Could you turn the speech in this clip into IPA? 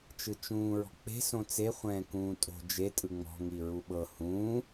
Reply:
t͡ʃ ɯ t͡ʃ ũː ɹ ɔ̤ k͡p e̤ s õ t͡s e χʷ ɛ̃ː k ũː tʼ o̤ d͡ʒ e tʼ ɯ ŋ͡m ɔ̤ ŋ i ɹ u ɓ ɤ h ũː

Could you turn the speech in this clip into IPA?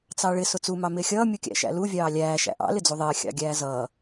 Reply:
t͡s ɑ ɭ ɪ s ʊ t͡s u m ɑ m ɪː xʲ ʌː mʲ u kʲ æ̰ ʃ æ̰ l u vʲ ɑː lʲ æː ʃ æ̰ ʔ ɑ̰ l ɪ d͡z u ðˤ ɪː xʲ ɑ̰ ɡʲ æː z ʌː

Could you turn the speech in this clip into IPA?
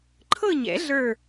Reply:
ǃʰ ɤ˥˧ ɲ ɛ̰˨˩˦ ɮ ə˞˥˧

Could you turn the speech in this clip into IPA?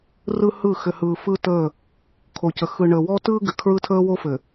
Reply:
r ɯ˦ h ɯ˦˨ x ɘ˨ h ɯː˨ f ɯː˦ t əː˦˨ | kʰ o˨ c ə˨ x ɯ˨ ɳ əː˨ w ɔ˦ t ɯː˦ ɡ ɘ˨ kʰ ɹ ɯ˦ tʰ əː˦ w o˦ f ɘ˨

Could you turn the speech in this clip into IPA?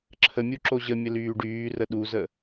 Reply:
ǁʰ ə mʲ u ǁ o ʑ ə mʲ ə l yː ɖ yː r ə ɗ u z ə

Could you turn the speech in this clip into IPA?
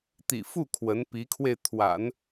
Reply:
t̪ ḭ˨˩ f u˥˩ kʰ w ə˧˥ n p i˧˥ kʰ w e˧ ɪ̯ t̪ʰ w a̰˨˩˦ n

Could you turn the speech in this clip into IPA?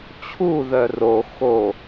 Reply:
t͡ɕʰ u ð œ r o x o

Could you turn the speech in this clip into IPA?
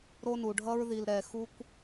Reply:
ɾ o˦ n u˩ ɖʱ ʌ˦ ɹ ð i˨ l ɾ ɛ˨ x u˥ kʷ

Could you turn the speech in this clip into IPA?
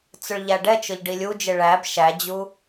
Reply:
t͡s ʊ ɭ ʎ æ ɖ ɛ t͡ʃ ʊ ʎ ɖ i lʲ u d͡ʒ ɪ ɭ æ b ʃ æ d͡ʑ u

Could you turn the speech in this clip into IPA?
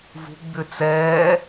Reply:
v ṳ ɡ͡b ʏ t͡s ɛː

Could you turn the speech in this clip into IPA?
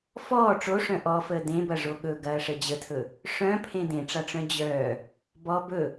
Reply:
f ɔː ʈ͡ʂ o ʂ œ̃ ʔ ɔ f əː d ẽ b ɐ ʐ o ɠ ɵ ɡ ɐː ʂ ə d͡ʑ ə tʰ ɵ | ʂ œ̃ pʰ ẽ d ẽ ʈ͡ʂ a ʈ͡ʂ œ̃ d͡ʑ œː | b ɔ b ɵ

